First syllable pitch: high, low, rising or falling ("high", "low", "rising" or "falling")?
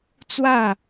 falling